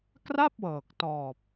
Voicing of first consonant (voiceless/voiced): voiceless